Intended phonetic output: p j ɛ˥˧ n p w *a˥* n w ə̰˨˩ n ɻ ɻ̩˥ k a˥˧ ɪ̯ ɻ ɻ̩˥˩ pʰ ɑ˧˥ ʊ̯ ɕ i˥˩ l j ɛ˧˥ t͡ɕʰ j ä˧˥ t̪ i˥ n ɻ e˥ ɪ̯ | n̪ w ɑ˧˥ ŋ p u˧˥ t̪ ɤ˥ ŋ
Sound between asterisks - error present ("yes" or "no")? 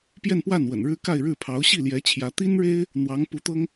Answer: yes